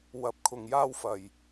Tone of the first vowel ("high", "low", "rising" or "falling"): rising